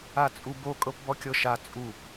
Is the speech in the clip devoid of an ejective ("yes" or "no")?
no